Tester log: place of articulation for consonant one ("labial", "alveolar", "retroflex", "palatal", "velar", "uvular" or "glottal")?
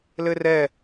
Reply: alveolar